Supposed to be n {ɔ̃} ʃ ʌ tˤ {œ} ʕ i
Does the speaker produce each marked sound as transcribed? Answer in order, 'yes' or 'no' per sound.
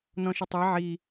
yes, no

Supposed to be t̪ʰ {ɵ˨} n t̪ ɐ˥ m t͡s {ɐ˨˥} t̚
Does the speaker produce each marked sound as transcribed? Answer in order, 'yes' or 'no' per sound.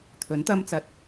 no, no

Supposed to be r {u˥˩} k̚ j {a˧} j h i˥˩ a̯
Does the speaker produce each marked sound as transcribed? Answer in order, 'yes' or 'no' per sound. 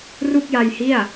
yes, yes

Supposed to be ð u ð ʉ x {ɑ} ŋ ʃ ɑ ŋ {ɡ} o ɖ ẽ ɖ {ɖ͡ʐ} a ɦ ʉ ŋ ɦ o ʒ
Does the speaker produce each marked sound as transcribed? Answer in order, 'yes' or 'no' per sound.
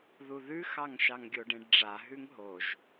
yes, no, yes

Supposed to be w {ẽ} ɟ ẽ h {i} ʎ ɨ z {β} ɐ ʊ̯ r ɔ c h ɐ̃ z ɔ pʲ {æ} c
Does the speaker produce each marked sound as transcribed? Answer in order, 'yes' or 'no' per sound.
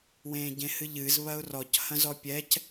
no, no, yes, no

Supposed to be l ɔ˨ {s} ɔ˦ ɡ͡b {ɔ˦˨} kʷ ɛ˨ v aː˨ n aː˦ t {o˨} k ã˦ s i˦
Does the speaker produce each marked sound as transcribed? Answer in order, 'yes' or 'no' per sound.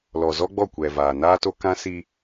no, yes, no

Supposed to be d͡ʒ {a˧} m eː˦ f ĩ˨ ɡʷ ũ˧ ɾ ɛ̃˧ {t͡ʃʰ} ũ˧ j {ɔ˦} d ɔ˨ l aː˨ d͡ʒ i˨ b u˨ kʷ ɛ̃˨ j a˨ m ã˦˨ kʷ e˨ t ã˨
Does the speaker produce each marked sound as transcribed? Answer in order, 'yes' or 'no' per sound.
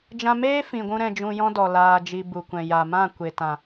no, no, no

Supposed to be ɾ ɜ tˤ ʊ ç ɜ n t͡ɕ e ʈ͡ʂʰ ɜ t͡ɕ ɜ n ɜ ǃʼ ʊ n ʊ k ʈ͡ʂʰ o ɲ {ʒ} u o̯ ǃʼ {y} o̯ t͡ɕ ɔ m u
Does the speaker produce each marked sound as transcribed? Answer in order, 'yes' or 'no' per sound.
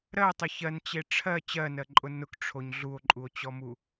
no, no

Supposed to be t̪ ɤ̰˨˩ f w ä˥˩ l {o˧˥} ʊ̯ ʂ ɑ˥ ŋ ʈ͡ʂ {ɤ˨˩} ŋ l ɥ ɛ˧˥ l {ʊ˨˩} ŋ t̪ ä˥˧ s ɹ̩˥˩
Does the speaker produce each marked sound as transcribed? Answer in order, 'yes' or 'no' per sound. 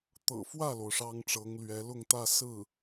no, no, no

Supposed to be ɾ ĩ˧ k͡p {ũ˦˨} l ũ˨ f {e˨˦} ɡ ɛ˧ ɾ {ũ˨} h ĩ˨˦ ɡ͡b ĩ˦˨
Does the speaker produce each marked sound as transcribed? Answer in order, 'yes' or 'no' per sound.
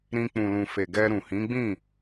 no, no, yes

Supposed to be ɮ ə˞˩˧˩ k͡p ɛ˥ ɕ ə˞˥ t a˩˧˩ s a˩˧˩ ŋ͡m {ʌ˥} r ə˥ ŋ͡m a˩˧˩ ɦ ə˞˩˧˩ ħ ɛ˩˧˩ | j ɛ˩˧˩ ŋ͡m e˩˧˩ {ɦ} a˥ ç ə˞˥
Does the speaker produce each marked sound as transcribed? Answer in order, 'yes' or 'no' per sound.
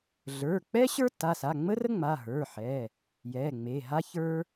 no, yes

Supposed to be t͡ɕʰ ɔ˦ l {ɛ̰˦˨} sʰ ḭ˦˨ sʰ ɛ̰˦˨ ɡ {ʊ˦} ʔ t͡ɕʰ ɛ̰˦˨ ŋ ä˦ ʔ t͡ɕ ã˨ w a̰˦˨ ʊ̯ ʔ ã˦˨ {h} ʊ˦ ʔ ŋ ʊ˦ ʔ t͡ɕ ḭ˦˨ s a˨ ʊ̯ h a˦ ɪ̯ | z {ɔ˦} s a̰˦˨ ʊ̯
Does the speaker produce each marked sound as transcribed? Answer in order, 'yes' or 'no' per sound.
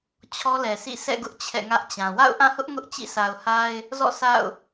no, yes, yes, no

